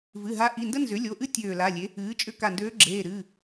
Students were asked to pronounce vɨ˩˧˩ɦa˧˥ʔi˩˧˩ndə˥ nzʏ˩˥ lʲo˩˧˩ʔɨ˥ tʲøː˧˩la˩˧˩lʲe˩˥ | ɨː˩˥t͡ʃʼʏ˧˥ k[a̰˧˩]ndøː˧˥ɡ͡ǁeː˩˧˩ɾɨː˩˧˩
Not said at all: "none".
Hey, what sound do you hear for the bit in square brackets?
a˧˩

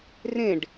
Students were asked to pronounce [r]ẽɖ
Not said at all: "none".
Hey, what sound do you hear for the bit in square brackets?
r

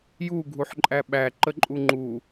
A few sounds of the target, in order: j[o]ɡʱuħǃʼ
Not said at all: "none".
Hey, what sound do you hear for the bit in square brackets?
u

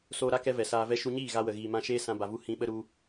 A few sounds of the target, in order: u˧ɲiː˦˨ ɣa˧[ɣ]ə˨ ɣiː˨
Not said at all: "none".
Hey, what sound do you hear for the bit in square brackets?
w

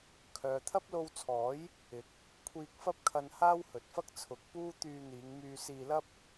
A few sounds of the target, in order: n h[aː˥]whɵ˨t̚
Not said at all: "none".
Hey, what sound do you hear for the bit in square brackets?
aː˥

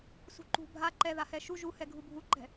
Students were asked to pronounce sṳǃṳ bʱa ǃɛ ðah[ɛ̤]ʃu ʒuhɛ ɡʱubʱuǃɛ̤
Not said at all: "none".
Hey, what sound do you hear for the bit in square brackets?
ɛ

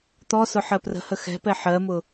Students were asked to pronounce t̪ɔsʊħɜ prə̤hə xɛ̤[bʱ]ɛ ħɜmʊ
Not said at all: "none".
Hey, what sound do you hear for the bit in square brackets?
p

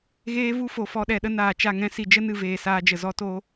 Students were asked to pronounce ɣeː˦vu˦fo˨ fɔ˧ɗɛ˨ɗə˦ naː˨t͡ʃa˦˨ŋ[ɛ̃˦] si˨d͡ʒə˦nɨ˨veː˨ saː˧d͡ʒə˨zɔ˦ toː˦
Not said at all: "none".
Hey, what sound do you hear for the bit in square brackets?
ɛ̃˦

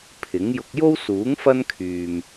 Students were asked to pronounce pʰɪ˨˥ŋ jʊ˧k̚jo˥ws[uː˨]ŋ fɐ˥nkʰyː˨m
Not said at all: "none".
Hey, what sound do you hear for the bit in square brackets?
uː˨˥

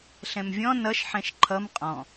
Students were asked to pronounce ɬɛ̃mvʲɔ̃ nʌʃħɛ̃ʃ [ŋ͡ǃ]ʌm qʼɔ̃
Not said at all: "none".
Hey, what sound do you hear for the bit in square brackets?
ǃʰ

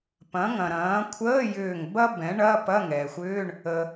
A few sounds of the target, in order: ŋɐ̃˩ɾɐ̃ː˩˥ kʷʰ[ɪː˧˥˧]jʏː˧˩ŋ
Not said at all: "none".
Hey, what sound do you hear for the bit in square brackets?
əː˧˥˧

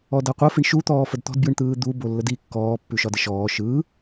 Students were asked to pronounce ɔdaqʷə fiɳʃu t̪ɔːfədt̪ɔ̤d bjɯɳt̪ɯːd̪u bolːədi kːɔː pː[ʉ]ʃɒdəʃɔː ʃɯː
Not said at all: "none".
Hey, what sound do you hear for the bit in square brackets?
ʉ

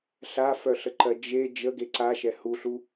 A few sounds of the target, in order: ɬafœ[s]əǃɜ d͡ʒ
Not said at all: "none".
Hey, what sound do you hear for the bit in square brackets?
ɬ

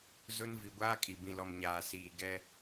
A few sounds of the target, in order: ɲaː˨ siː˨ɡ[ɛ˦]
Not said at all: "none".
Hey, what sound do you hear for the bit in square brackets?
ɛ˦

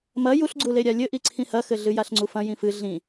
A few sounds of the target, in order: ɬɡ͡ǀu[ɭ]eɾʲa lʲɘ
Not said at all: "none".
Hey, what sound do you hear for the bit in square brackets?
l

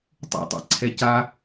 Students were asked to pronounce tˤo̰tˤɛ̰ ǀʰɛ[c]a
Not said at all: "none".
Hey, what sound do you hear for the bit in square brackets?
c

